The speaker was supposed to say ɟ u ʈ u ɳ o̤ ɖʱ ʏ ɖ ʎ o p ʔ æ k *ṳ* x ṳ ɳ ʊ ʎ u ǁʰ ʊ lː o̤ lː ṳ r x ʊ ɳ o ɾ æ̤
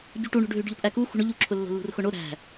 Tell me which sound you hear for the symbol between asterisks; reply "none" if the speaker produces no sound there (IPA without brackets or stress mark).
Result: u